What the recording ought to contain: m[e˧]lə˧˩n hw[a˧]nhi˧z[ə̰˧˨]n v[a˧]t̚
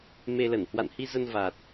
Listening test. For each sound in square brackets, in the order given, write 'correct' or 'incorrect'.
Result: correct, incorrect: a̰˧˨, incorrect: ə˧, incorrect: a˨˩

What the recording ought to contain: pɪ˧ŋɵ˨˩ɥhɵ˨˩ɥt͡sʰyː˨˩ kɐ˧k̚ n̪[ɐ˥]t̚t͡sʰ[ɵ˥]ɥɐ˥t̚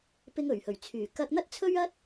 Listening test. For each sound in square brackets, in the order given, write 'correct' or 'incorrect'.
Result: correct, correct

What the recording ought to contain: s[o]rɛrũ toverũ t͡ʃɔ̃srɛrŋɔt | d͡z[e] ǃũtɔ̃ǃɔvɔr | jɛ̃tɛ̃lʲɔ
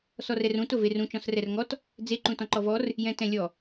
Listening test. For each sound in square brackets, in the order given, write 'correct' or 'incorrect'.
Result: incorrect: ɔ, correct

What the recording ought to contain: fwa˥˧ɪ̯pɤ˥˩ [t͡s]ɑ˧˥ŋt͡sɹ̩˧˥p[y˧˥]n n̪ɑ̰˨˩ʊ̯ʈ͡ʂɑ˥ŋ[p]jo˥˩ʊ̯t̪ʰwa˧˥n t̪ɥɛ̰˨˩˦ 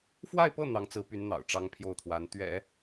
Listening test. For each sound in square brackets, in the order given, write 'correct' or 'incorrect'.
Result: incorrect: n̪, correct, incorrect: pʰ

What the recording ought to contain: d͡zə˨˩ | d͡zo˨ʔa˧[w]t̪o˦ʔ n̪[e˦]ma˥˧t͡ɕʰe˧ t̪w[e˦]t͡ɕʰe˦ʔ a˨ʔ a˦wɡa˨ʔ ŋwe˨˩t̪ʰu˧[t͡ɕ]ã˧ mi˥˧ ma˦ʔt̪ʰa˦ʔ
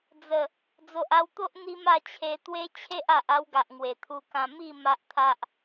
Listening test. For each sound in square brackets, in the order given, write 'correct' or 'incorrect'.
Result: correct, incorrect: i˦, correct, incorrect: k

